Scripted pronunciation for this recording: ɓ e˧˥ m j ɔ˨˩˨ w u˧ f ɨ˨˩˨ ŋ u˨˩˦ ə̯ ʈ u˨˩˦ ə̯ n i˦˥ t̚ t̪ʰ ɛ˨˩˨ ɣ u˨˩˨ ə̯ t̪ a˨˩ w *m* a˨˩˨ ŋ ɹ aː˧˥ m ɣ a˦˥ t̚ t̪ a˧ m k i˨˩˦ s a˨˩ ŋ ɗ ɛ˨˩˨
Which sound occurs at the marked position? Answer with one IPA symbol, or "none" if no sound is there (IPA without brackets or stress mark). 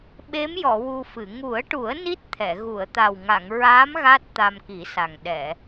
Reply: ŋ